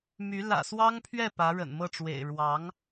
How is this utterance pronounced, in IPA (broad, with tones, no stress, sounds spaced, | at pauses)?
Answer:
m y˧˥ l ä̰˨˩ s w ɑ˥ ŋ pʰ ɥ ɛ˥˩ p ä˧˥ ɻ ə̰˨˩ n m ɤ˥˩ ʈ͡ʂ w ḛ˨˩ ɪ̯ ɻ w ɑ˧˥ ŋ